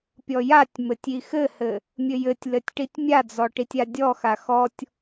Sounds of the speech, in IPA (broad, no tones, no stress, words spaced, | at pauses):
pʲɔjatʲmɘtʲ ixɘhɘ | mʲɘjɘtʲlɘtʲ ʈitʲmʲad͡zɔ ʈitʲadʲɔxa xɔtʲ